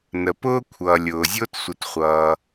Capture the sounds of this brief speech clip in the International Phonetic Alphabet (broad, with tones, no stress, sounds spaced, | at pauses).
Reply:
n ə˩ p ʊː˥ kʷʰ ʌː˩ lʲ ʊː˩ zʲ ʊː˥ t sʷ ə˨ t χʷ ʌː˨